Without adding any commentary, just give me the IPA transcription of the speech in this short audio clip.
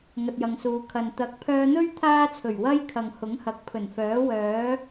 ŋ ɐ˨ t̚ j ɐ˨ ŋ s uː˨ kʰ ɐ˨ n t̪ ɐ˨˥ k̚ pʰ œː˧ n̪ ɵ˥ ɥ t̪ʰ aː˥ t͡sʰ ɵ˨˩ ɥ w ɐ˥ j kʰ ɐ˨ ŋ h ʊ˨˥ ŋ h ɐ˨ k̚ pʰ ɵ˨˩ n f œː˨˥ w œː˨˥

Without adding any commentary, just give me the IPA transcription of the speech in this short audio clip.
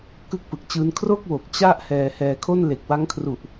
k ɯ˥˩ k̚ p ɯ˨˩ k̚ t͡ɕ ɯː˦˥ n kʰ r o˥˩ k̚ w o˨˩ k̚ t͡ɕ a˥˩ ʔ h ɛː˧ h ɛː˧ kʰ o˥˩ n l e˨˩ k̚ w a˦˥ ŋ kʰ r u˨˩ ʔ

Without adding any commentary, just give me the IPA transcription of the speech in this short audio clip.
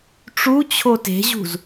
ʈ͡ʂ u t͡ɕʰ o t e̤ ʑ ṳ z

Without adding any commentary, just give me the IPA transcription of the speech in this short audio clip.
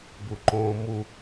b u ǃ õː m u

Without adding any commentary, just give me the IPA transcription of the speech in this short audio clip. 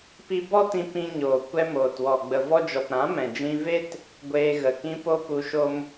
p i˧ b ɔ˦ t ĩ˧ p ĩ˧ ɲ oː˨ kʷ ɛ˧ m oː˨ t w ɔ˨ ɡ͡b ə˨ v ɔ˧ d͡ʒ ɔ˨ p ɾ ã˨˦ m ɛ̃˨ d͡ʒ ĩ˧ v e˦ t | ɡʷ eː˧ ɣ ə˨ k ĩ˧ p o˧ p u˧ ʃ o˦ m

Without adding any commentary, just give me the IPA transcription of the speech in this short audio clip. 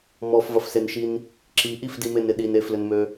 m ɔ f v ɐ f s e n ʃ i n | ǁ i ʔ i f d i m e n ɪ ɗ i n e f l ʏ n m ø

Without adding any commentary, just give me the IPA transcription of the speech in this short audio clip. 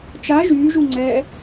t͡ʃ a ʒ yː ʒ u ŋ͡ǀ ɛ

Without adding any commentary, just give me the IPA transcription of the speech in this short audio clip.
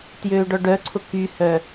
t j øː ɖ ɔ ɖ œ ǀʰ ʊ k y h œ

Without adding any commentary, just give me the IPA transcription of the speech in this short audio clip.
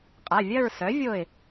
qʼ a˩˧˩ vʲ ɐ˥˧ ɹ s œ˩˥ vʲ o˧˩ ɪ̯

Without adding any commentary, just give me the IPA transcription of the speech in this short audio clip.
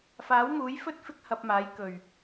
f aː˨˥ w m uː˨˥ j f ɵ˥ t̚ f ɪ˥ k̚ h ɐ˧ p̚ m aː˨˥ j k ɵ˨˩ ɥ

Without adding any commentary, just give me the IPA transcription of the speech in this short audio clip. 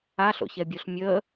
a ɬ o̰ ç ɛ bʲ o ɬ mʲ ə

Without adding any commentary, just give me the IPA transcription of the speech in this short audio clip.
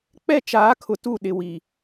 k͡p ɛ˦˨ t͡ʃ aː˨˦ kʰ ʊ˨ t u˦˨ ɗ ɪ˨ w i˨

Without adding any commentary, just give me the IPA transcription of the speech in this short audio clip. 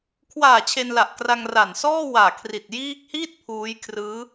kʰ w aː˨˩ t͡ɕʰ e˧ n l a˨˩ ʔ k r a˧ ŋ r a˨˩ n s ɔː˥˩ w aː˨˩ kʰ r i˨˩ t̚ j iː˦˥ k̚ h iː˥˩ t̚ pʰ uː˦˥ j kʰ r ɯː˦˥

